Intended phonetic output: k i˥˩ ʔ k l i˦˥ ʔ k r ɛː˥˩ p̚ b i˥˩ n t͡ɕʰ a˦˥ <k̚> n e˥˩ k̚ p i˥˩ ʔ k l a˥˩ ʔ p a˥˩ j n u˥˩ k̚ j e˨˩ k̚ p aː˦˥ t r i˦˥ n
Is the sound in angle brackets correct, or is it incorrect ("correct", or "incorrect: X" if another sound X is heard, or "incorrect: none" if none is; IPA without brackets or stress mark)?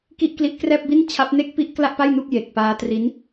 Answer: incorrect: p̚